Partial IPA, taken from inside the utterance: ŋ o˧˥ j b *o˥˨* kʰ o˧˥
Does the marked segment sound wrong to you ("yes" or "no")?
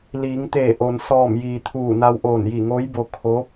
yes